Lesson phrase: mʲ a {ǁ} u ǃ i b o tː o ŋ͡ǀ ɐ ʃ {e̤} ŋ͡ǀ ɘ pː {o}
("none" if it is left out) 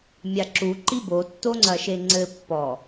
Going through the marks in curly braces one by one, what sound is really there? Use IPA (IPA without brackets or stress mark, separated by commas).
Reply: ǁ, e, ɔ